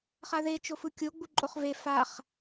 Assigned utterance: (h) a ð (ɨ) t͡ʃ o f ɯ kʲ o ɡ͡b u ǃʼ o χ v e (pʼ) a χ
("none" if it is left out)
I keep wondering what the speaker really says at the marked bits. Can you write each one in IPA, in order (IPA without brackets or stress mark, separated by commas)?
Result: χ, e, f